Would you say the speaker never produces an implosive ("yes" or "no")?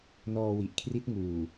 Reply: yes